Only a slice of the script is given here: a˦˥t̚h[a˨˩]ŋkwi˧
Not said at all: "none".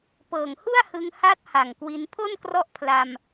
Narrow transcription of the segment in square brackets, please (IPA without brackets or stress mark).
a˨˩